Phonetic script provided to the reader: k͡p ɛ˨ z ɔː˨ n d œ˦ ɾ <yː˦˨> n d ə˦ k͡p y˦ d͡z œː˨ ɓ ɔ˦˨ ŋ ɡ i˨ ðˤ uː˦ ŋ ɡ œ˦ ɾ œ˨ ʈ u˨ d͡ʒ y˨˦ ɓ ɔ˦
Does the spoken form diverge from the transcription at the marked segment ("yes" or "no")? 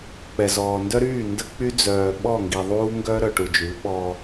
no